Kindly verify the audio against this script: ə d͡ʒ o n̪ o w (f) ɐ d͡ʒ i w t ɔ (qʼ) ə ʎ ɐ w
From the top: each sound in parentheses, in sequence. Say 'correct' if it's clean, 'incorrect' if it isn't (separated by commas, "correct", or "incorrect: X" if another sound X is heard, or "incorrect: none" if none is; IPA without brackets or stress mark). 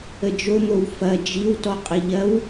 correct, correct